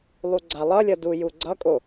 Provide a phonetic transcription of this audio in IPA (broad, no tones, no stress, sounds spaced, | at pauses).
lˠ u ɡ͡ǀ a lˠ ʌ lʲ ʌ d u j u ɡ͡ǀ ʌ kʼ o